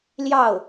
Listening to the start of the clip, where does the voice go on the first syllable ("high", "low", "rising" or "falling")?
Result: falling